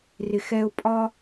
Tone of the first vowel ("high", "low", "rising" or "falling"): low